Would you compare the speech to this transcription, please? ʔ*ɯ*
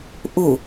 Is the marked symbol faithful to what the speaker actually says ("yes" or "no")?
no